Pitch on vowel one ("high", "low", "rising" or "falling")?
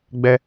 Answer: high